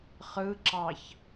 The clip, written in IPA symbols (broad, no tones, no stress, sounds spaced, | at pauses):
χ ɯ ǁ ɑ ç